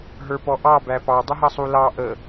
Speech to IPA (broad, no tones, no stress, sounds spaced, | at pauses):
ɦ ə˞ p ɔ ʔ ɑ b æ p ɑ dˤ ʊ ɦ ʌ sˤ u l ɑ ʔ ə